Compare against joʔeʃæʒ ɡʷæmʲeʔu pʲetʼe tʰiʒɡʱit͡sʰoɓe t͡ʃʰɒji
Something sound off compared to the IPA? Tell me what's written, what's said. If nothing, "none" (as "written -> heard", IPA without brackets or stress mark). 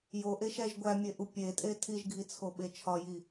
none